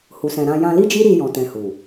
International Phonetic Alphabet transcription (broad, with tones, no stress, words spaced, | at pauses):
hu˨sɛ̃˨ ɾã˧ jã˧li˦d͡ʒi˦ɾi˧ jɔ̃˨tɛ̃˨ hu˨